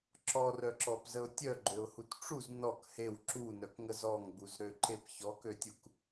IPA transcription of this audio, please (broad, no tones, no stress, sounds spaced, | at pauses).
ǁ ɔ r œ ǁ ɔ p z ə ʊ̯ tʲ œ ɡ͡ǃ ø ʊ̯ h u t ʈ͡ʂ u z n ɔ k h e w ǁ u n œ k ŋ ə z ɔ ŋ ɡ͡b u z ɾ ø ǃ e p ç ɔ k ø tʲ u k